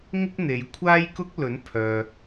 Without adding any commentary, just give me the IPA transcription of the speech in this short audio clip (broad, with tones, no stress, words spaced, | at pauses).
ŋɪ˥k̚n̪e˨˧j kʷʰaː˥jkʊ˥k̚lɵ˨˥npʰœː˨